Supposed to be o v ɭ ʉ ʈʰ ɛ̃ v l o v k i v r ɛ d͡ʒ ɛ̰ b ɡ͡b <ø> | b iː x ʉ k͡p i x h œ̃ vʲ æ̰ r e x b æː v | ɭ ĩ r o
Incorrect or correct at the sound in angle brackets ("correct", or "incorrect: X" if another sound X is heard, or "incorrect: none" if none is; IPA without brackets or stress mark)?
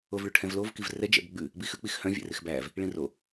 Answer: incorrect: ʉ